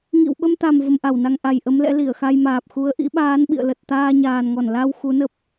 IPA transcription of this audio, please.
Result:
ŋ ḭ˧˨ w ɓ ə˧ m t̪ a˨˩ m v ə˧ m ʔ a˧˩ w n a˧ ŋ ʔ a˨˩ j ʔ ə˨˦ m l ɛ̰˧˥ l i˧˩ ə̯ x a˧ j m aː˨˩ p̚ x u˨˦ ə̯ ʔ ḭ˧˥ ɓ aː˨˦ n ɓ ḭ˧˨ ə̯ l ə˨˩ t̚ t̪ aː˧ ɲ aː˨˩ n ŋ ɔ˧˩ n l a˧ w x u˨˦ n ə˦˥ p̚

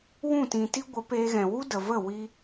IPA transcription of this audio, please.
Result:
w ũ˦˨ t ĩ˨ t i˦ ɡʷ ə˨˦ p eː˦ ɣ ɛ̃˧ w u˦ d ə˨ v ə˦˨ w i˦

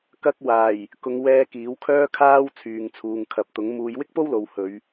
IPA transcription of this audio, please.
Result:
k ɐ˧ k̚ w aː˨˩ j | k ʊ˨ ŋ w ɛː˧ k iː˨˥ w kʰ œː˥ kʰ aː˥ w t͡sʰ yː˨ ŋ t͡sʰ uː˨ ŋ kʰ ɐ˨˥ p̚ t̪ ʊ˨˥ ŋ m uː˨˧ j w ɪ˥ k̚ p o˥ w l o˨ w h ɵ˨˧ ɥ

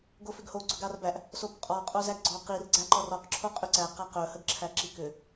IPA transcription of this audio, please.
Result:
ɡ o f ʏ ɡ h o ɡ͡ǀ ɵ ɡ a r b æ ʔ | s o p qʼ ɔ qʼ o z æ ɡ ɡ͡ǀ ɔ q i r ɡ͡ǀ æ ǃ ɔ r ɔ q ǁʰ o qʼ ʏ ǀ æ q a q ɵ h ə ɡ ǁʰ æ ǁ i k ʏ

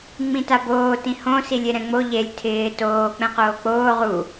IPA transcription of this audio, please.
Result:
ŋ͡m ĩ t a b oː t ĩ h õ s i lʲ e ɾ ɛ̃ ŋ͡m o ʎ e lʲ tʰ ɪː t oː k͡p ɛ̃ q oː k͡p oː ʁ u

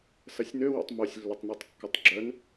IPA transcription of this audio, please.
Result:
s ɐ sʲ n ø w o̰ tˤ m o sʲ lː ʏ tˤ n o tˤ kː ʏ tˤ ɡ͡ǁ œ n

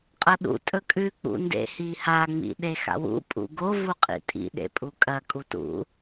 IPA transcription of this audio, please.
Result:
qʼ ɐ ɗ ṵ tʼ ɵ kʼ ʉ k͡p ṵ n d ḛ h i h a ŋ͡m ḭ ɗ e x a̰ w ṵ pʼ ṵ ɡ o v u qʼ ḭ tʼ ḭ ɗ ḛ pʼ u kʼ ɐ kʼ u t ṵ

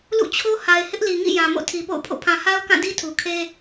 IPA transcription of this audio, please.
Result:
l ṵ˦˨ t͡ɕʰ o˦ h a˨ ɪ̯ h ɪ˦ ʔ l i˨ ŋ ḭ˦˨ j ã˨ m o̰˦˨ tʰ i˨ p o̰˦˨ ʊ̯ pʰ o̰˦˨ pʰ ã˨ h a˦ ʊ̯ k ã˦˨ d i˦ tʰ u˨ kʰ e˦

